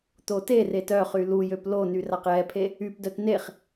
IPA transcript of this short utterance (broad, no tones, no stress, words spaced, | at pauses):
t̪oteret œχy lujøp lony raqjɛpʰe | ypdœt neχ